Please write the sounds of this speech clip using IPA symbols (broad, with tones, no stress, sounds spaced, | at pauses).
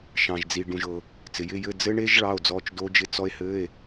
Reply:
ʃ ɑ̃˨ ʒ d͡z i˨ ɖ ũ˨ ʒ ɤ˨ | t͡s ɪ˨ j ɪ˧˥˧ j ɘ˧˥˧ d͡z ɘ˦˥ ɳ e˦˥ ʒ ɭ ɑ˧˥˧ o̯ d͡z ɔ˧˥˧ t͡ʃ d o˦˥ d͡ʒ ɪ˧˥˧ t͡s ɔ˦˥ e̯ h ɘ˧˥˧ e̯